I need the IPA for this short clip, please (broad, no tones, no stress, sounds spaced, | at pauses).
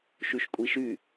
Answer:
ʃ y ʃ kʷʼ i ʃ y